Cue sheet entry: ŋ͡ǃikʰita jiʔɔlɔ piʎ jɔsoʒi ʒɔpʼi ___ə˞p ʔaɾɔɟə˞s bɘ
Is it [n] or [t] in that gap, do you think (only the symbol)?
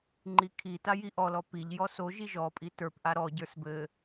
t